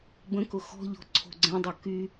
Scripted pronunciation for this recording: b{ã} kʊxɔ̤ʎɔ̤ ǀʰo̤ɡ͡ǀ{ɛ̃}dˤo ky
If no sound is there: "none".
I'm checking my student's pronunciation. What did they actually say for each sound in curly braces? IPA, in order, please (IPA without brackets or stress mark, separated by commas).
ə̃, ɛ̃